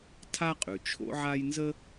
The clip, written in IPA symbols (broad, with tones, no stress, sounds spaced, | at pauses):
tʰ a˥ qʼ ʉ˩ t͡ʃʰ o̰˥ ʕ a˥ j n z ə˥